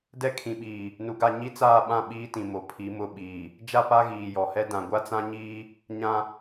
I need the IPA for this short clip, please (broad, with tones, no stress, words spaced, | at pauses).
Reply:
dɛ˦kʰĩ˨ɓiː˨ | nu˨ɡa˦˨ ɲi˦t͡saː˦˨ɓã˦˨ ɓiː˦tĩ˨ mo˨pʰi˨˦mʊ˦˨ ɓiː˨ | d͡ʒa˦˨pa˦ɣiː˨ jɔ˨hɛ˦ dã˨ɡʷa˦t͡sã˦ɲiː˦ | ɲã˦